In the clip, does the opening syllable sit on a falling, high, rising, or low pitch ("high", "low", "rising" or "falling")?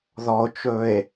low